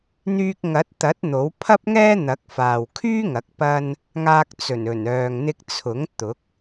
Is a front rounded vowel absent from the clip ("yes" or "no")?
no